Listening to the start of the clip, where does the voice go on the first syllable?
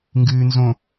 low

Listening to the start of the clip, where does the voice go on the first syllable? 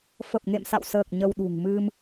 low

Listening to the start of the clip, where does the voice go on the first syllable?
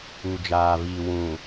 low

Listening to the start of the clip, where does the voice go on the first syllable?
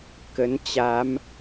rising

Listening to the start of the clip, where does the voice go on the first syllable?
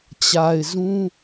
low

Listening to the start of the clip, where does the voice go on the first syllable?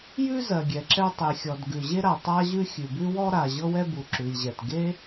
high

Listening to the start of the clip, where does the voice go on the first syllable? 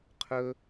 high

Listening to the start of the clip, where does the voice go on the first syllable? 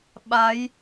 rising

